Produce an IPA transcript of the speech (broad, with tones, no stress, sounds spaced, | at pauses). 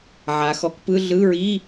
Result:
ʕ a˩˧ x ɔ˩˥ k p ɯ˧˥˧ ɮ ɯ˧˥˧ ɹ i˧˥˧